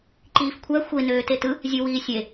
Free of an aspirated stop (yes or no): no